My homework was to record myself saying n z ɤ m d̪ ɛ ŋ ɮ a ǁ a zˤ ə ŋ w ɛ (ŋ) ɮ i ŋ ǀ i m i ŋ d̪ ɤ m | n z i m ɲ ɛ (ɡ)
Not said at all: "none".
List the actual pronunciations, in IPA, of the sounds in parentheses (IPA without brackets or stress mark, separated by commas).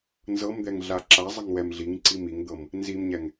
m, ŋ